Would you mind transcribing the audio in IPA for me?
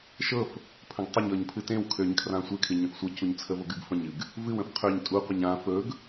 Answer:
ʃ ɤ f | pʰ ə̃ ɡ tˤ ə ɲ ɤ ɲ pʰ ɨ t ẽ w kʰ ø ɲ kʰ r ã sʷ e kʰ ɨ ɲ ə̃ f sʷ ɤ c u ɲ t͡sʰ ə v o ɡ ɨ ɡ f ə̃ ɲ ɨ ɡ | v ɨ w ə̃ f qʰ ø ɲ tʼ u qʷ ə ɲ ã f ɵ ɡ

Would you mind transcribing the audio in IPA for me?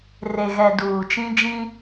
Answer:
r e˨ ɣ ɛ˨ d uː˨ t͡ʃ ĩ˦ d͡ʒ ĩ˦

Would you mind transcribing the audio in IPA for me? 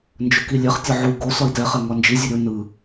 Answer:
n d͡ʒ ɵ k i lʲ ɛ χ tʲ ɒ ʕ u ɡ o s ɒ i̯ t ɛ χ ɛ ŋ ɒ n d͡ʒ i zʲ ɵ ɾʲ u n ɯ

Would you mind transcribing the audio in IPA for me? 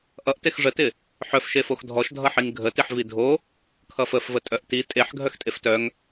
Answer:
ʔ ʌ ʔ t e x ʐ ə t ɪ | ħ œ f ʃ e f o x dʱ ɔ ʃ dʱ ʌ ħ i ŋ ɡʱ ə t i ħ v i dʱ o | kʰ ʌ f ə f v ə tʼ œ ʔ t i tʼ e ħ ɡʱ œ x tʼ e f t œ ŋ

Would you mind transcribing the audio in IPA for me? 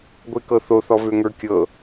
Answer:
ɡʷ e k ɤ θ o θ ɔ v ø ŋ ə˞ kʲ ɤ

